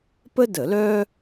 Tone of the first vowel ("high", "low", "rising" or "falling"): high